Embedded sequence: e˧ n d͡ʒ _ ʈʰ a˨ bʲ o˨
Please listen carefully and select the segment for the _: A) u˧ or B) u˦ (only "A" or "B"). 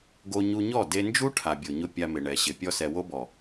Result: B